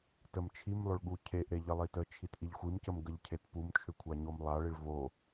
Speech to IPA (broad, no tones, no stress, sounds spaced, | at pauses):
t ə m t͡ʃʰ i m lˠ ʏ ɭ ɠ u cʰ e ʔ ɾ e ʎ ə lˠ i t ə t͡ʃʰ i t ʔ i ʎ xʷ i m c ə m ɡ ə ʎ cʰ e t p u m t͡ʃʰ ʏ kʷʰ a ɲ o m lˠ a ɭ i ɭ v o